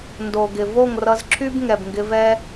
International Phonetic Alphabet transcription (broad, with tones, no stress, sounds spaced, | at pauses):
n d o˨ ɡ ɪ˨ v o˦˨ ŋ r ʌ˧ z ǁʰ y˦ b ŋ ɛ˨ b ŋ ɡ ɪ˧ v ɛ˦